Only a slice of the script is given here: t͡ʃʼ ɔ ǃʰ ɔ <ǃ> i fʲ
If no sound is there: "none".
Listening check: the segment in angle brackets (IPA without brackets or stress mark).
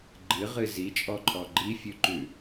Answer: ɡ͡ǃ